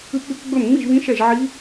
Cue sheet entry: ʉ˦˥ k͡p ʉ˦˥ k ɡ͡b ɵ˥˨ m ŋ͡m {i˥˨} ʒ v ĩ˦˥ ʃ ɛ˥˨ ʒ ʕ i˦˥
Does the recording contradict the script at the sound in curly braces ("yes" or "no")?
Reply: no